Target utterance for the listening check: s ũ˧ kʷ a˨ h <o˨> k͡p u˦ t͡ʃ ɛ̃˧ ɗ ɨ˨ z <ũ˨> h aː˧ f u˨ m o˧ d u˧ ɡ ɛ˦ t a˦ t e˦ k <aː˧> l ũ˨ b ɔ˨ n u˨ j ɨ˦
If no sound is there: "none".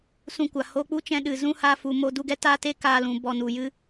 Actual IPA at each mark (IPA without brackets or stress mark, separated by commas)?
o˧, ũ˦, aː˧